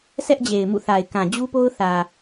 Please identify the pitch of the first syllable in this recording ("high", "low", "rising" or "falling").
high